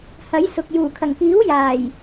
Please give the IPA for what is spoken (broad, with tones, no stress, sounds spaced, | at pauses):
h ɐ˨˥ j s ʊ˨ k̚ j uː˨˩ kʰ ɐ˨˩ ŋ k iː˨˥ w j aː˨˩ j